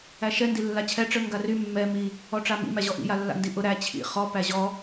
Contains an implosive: no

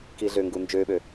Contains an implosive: yes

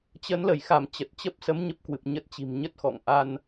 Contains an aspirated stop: no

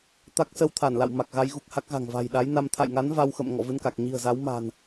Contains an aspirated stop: yes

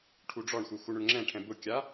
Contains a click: yes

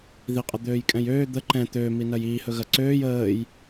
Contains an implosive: no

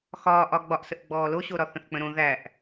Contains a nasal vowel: yes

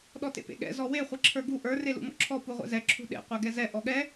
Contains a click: yes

